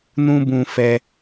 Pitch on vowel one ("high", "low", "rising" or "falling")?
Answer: high